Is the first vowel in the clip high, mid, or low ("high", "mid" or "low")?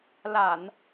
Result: low